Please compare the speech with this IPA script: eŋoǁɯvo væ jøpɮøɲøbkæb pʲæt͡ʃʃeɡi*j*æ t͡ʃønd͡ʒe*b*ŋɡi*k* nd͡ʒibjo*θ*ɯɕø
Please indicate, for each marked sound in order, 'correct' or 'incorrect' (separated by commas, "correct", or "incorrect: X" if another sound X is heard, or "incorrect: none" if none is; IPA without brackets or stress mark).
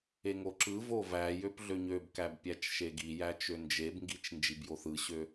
correct, correct, incorrect: t͡ʃ, correct